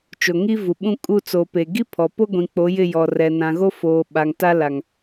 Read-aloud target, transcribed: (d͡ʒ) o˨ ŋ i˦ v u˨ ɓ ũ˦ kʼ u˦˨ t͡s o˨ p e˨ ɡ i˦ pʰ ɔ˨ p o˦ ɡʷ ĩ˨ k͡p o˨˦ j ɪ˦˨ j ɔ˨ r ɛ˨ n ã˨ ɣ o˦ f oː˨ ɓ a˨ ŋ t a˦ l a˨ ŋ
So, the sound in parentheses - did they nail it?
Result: no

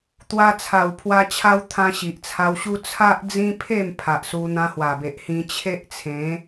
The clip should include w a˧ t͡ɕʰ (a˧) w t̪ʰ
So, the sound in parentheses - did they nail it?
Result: no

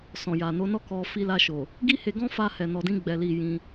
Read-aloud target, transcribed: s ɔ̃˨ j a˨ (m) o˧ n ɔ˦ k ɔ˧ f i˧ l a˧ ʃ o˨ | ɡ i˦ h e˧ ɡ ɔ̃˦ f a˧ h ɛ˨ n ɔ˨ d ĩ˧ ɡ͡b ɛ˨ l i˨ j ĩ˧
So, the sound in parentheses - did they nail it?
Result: no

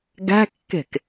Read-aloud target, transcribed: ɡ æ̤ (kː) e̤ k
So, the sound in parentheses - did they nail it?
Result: yes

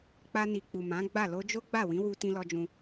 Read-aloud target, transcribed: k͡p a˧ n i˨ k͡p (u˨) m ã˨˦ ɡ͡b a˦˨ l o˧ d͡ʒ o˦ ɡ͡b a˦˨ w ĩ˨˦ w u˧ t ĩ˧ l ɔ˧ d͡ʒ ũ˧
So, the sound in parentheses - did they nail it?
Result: yes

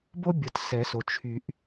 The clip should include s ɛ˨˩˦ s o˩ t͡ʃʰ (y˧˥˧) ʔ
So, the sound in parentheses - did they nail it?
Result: no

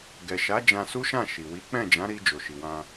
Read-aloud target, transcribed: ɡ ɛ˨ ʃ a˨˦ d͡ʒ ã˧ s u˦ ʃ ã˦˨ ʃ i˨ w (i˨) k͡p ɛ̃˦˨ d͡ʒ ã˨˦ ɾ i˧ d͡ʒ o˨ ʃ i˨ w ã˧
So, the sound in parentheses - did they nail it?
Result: no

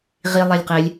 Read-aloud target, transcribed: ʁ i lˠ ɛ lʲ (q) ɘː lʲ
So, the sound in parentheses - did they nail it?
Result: yes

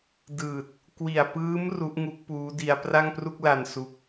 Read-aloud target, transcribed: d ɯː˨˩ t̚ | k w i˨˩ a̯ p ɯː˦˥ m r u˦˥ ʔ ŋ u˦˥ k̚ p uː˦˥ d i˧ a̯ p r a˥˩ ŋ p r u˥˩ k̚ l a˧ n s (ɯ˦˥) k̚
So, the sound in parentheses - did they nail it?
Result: no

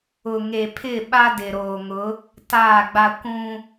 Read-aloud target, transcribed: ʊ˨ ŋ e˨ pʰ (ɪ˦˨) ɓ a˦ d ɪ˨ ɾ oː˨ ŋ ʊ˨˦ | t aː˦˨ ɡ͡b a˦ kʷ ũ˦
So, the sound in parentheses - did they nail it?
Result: yes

